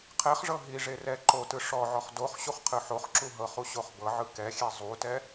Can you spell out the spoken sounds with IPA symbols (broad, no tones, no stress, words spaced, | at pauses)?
qʰɛχʐɤ ɦiʐe rɛ ǃotɯ ʂɔʕɔχ doχ ɕuχqʰɯħoχǁu ɦɤχu ɕoχbɤʕɯ kɛxʲɛ zˤutɛ